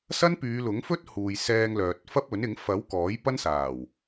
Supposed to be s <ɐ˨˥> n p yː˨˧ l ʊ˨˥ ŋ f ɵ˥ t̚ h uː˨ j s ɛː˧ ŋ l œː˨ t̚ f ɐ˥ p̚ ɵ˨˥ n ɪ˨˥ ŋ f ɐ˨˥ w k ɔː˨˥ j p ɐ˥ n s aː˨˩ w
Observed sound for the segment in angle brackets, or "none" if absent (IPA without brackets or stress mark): ɐ˥